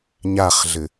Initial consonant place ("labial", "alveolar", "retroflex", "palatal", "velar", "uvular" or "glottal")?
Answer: palatal